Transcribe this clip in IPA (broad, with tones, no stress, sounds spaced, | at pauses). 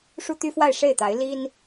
ʂ u˥ t̪ y˥ f w a˥˧ ɪ̯ ʂ e˥˩ ɪ̯ t̪ a˧˥ ɪ̯ l i˥ n